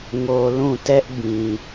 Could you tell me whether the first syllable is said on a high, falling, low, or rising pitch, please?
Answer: low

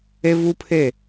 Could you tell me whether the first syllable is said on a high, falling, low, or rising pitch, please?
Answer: high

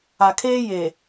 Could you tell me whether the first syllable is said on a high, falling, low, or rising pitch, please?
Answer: low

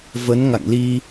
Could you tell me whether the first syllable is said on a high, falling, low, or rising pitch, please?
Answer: rising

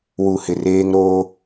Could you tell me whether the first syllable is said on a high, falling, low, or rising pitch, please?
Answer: low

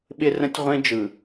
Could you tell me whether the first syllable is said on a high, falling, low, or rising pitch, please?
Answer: high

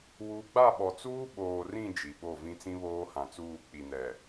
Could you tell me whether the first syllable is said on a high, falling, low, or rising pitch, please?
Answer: rising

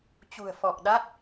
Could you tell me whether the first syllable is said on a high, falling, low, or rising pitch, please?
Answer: low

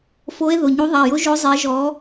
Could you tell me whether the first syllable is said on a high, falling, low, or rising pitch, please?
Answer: rising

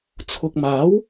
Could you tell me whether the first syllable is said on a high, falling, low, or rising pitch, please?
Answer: low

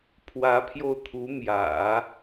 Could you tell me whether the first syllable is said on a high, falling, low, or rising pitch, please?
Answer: rising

